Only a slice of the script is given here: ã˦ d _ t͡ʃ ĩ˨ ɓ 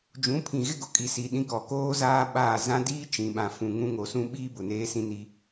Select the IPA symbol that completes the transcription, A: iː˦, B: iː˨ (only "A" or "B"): A